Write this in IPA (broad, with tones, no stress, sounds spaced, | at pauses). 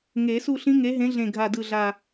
ŋ e˨˩˦ s u˥˧ ɬ ĩ˦˥ ŋ e˨˦ ɦ ẽ˨˦ ɮ ẽ˨˩ ɡʱ a˨˩ d ɯ˨˩ ɮ a˨˩